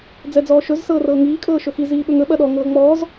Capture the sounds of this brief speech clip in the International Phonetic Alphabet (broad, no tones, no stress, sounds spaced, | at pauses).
d͡z ɛ d͡z ɔː ʃ ɵ z s ɤː r ɤː ŋ iː kʼ ɤː ʃ ɵ x i z iː ɓ ɵ ŋ ɵ ɓ ɐ ɗ ɔ ŋ ɤː ŋ͡m ɔː z